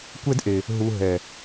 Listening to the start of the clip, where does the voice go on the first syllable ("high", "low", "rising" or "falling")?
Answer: high